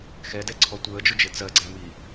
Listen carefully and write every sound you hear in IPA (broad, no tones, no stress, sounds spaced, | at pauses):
x ɛ d ɛ ǀʰ ɔ tʷ əː d͡ʒ ʊ d͡ʒ ɪ t͡s ɜ ɡ͡ǀ æ m i